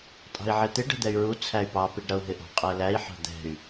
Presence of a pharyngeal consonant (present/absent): present